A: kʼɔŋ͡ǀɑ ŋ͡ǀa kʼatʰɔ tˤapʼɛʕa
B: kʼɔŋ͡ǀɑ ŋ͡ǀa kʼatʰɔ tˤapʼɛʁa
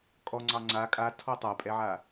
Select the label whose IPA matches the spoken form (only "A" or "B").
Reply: A